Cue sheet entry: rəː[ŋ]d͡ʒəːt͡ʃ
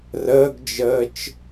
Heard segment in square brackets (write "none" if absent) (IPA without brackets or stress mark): ɡ